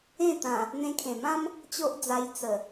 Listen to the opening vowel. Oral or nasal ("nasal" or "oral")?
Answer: nasal